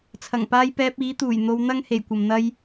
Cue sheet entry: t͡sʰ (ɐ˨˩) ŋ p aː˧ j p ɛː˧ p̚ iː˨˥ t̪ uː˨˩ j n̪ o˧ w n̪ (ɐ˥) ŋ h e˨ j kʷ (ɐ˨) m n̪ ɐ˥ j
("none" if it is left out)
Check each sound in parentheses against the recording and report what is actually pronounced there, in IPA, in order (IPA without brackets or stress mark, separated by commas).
ɐ˨˩, ɐ˥, ɐ˨